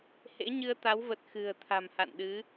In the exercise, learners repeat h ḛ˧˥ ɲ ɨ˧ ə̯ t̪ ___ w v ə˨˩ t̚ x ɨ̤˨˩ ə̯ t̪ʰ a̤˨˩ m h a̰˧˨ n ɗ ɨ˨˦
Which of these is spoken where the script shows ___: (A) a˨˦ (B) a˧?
A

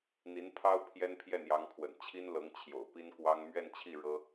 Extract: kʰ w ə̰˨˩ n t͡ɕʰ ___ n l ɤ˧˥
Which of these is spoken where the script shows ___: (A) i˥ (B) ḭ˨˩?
A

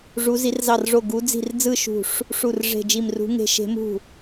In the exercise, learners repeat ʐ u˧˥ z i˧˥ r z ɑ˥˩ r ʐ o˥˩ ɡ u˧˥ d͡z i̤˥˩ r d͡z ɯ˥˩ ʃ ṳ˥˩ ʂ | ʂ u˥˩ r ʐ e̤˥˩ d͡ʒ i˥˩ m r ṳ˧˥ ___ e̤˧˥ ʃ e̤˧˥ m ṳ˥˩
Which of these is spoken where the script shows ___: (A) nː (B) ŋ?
B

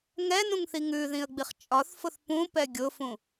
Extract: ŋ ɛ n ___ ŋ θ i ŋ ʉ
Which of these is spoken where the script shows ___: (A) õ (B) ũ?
B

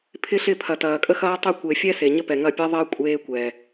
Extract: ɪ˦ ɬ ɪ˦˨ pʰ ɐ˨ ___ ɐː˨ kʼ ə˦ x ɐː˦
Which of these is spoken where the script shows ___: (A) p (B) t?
B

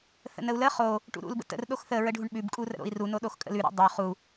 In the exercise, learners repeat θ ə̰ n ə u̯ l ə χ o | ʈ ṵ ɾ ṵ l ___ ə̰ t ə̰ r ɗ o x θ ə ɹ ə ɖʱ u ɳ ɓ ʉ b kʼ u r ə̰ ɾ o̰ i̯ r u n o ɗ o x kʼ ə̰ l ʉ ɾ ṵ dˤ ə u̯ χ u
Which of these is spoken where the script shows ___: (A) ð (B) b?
B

